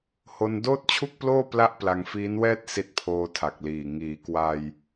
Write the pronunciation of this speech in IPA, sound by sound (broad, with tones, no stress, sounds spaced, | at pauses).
h o˧ n d oː˥˩ t̚ t͡ɕʰ u˥˩ k̚ p l oː˥˩ p l a˥˩ ʔ p l a˧ ŋ f iː˦˥ n w ɛː˥˩ t̚ s i˦˥ t̚ pʰ oː˧ tʰ a˨˩ k̚ l iː˨˩ ŋ iː˩˦ k w a˧ j